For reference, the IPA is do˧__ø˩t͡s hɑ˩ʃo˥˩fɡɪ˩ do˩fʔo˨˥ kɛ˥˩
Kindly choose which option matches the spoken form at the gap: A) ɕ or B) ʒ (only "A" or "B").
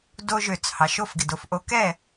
B